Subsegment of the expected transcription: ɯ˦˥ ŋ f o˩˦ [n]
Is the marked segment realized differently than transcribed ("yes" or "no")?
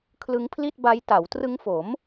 yes